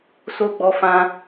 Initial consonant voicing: voiceless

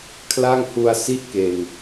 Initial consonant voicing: voiceless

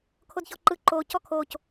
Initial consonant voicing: voiceless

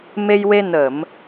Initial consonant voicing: voiced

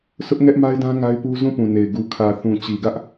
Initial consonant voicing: voiceless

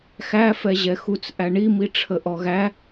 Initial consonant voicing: voiceless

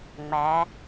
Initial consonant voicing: voiced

